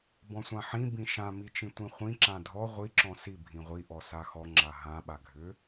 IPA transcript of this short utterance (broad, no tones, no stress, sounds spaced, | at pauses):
b ɔ̃ sʷ ã ħ ĩ b ĩ ʃ ã m i t͡ʃ ĩ tʷ ĩ χʷ ĩ ǁ ã dʱ ɔ ʁʷ i ǁ ɔ̃ s i bʱ ĩ ʁʷ i ʔ ɔ s a x ɔ ŋ͡ǁ a ɦ ã ɓ a ɡʱ ʏ